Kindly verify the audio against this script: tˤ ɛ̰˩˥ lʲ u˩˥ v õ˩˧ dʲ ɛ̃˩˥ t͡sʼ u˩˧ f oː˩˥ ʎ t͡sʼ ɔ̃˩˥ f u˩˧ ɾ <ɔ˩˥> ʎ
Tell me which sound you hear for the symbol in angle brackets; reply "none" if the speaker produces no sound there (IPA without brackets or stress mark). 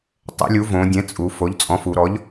ɔ˩˥